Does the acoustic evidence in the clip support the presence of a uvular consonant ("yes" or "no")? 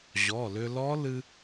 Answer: no